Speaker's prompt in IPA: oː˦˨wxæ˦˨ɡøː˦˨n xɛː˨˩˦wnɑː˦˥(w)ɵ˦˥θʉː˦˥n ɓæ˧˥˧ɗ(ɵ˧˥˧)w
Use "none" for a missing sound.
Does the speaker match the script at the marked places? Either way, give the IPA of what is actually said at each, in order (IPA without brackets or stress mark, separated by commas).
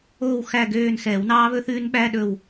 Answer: β, ɵ˦˨